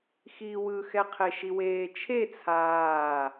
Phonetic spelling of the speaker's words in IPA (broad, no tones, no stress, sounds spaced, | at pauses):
x iː w ɯ x ɛ qʰ e ʃ i w eː t͡ʃʰ e t͡sʰ aː